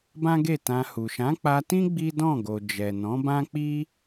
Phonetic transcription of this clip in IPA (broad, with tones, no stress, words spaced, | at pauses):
bã˦ɡe˦˨tã˧hu˨ ʃã˨˦k͡pa˧tĩ˦ ɡ͡bi˦dɔ̃˦˨ɡo˨ d͡ʒɛ˨nɔ̃˨˦bã˦k͡pi˦